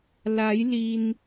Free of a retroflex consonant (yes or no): yes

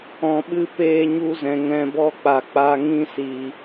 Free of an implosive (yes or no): no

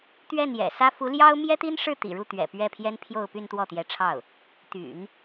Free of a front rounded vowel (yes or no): no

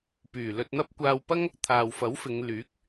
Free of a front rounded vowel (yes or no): no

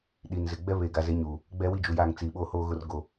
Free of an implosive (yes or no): no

